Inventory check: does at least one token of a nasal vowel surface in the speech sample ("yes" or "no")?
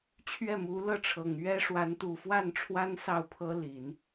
no